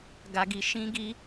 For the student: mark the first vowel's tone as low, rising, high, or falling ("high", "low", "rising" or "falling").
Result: low